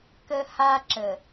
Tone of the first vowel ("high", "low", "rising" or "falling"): high